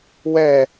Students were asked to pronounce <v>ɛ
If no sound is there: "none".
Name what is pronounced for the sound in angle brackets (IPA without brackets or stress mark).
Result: w